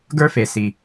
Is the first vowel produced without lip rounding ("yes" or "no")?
yes